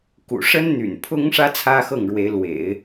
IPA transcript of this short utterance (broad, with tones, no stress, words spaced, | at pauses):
kṵ˨˩ʂə˥n n̪y̰˨˩npʰʊ˥ŋʂä˥ t͡sʰä˥xɤ˥˩ŋɻwe˧˥ɪ̯ lwḛ˨˩˦ɪ̯